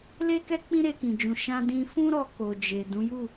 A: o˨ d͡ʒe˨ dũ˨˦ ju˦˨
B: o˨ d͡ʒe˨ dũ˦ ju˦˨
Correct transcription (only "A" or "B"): A